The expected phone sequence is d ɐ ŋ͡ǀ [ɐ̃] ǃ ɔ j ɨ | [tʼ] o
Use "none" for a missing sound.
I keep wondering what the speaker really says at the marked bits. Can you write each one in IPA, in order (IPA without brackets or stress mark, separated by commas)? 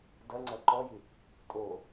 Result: ɐ, tʼ